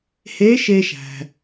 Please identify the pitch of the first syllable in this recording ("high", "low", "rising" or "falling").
rising